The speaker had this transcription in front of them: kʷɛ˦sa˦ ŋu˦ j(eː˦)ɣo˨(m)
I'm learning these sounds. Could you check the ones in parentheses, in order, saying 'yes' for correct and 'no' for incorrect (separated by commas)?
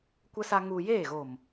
no, yes